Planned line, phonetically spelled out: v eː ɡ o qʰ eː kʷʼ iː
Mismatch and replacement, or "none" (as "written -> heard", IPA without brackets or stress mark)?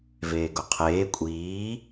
none